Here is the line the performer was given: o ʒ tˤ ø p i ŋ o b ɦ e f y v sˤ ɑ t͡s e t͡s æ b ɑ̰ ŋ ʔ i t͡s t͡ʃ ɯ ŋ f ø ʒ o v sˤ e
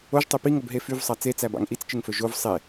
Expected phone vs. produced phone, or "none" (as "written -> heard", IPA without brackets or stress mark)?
none